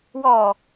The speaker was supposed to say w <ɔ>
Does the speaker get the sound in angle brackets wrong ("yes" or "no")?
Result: no